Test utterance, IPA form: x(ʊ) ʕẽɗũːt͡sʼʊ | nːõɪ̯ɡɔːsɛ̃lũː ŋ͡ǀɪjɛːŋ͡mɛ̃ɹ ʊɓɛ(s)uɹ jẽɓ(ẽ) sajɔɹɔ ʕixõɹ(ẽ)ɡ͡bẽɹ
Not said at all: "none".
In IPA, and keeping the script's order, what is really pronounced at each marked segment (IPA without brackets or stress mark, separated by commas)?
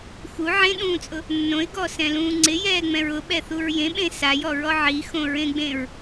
u, θ, ẽ, ẽ